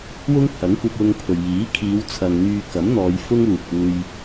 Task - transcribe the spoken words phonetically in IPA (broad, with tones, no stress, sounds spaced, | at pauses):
w ʊ˥ ŋ h ɐ˨˥ ŋ kʷ ɐ˧ p̚ w ʊ˧ ŋ pʰ ɵ˨ ɥ j iː˨˥ kʰ iː˨˧ w t͡sʰ ɐ˨ ŋ n̪ yː˧ k ɐ˨˥ m n̪ ɔː˨˧ j f ʊ˥ ŋ uː˨ k̚ uː˧ j